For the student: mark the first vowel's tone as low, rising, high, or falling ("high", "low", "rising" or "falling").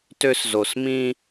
high